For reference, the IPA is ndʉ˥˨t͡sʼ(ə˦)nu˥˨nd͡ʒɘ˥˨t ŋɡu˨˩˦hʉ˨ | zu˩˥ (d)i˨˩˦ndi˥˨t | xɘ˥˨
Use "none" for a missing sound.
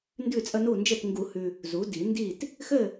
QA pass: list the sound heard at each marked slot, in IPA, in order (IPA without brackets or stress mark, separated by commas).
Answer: ə˦, d